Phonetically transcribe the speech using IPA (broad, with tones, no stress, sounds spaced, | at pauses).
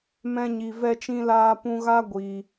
m ɛ̃˧ ɲ i˨ v ɛ˧ t͡ʃ ĩ˧ l aː˧ p ũ˧ ɣ a˦ ɡʷ i˧